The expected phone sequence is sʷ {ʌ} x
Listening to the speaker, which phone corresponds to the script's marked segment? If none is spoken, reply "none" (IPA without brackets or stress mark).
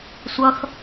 ʌ